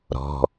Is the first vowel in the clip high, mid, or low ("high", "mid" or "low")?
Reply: mid